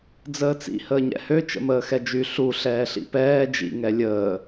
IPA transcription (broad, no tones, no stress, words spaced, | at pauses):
d͡zəːt͡sḭ həːɲɛ̰hø t͡ʃə̰məːxɛd͡ʒy ɬu ɬɛːɬḭpɛː d͡ʒḭ ŋɛlʲəː